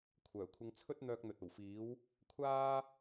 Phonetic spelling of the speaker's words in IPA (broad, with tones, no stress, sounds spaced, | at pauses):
kʷʰ œː˨˩ kʷʰ ɪ˧ ŋ t͡sʰ ɵ˥ t̚ n̪ œː˧ k̚ n̪ ɵ˨ t̚ o˨˩ w f iː˨˥ w | kʷʰ aː˥